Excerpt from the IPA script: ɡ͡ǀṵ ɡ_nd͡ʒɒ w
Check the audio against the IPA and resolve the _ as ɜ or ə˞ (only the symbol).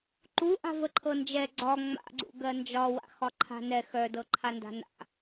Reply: ɜ